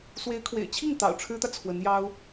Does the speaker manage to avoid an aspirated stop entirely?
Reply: no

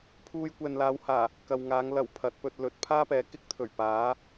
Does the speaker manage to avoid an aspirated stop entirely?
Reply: no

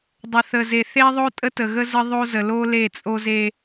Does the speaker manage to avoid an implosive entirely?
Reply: yes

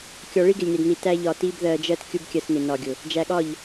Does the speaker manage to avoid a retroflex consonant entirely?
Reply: no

